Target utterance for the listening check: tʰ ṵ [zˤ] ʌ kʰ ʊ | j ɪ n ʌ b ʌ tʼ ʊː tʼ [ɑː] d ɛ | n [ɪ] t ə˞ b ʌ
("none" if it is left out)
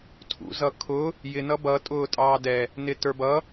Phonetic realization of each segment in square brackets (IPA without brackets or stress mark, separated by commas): z, ɑː, ɪ